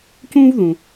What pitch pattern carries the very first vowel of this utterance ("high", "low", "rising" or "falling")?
high